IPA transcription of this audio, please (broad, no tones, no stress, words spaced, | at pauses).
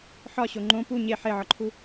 ħɒɕo ŋ͡ǃõ pu ɲe ħeʕɒǃʰu